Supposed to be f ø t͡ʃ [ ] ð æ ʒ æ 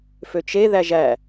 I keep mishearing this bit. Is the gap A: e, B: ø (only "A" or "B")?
A